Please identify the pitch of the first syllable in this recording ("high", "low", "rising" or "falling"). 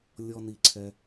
low